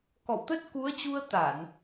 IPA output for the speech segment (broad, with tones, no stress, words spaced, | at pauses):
kɔ̰˧˨wt̪ə˦˥t̚ ku˨˦ə̯t͡ɕu˧ə̯ t̪a˧˩˨n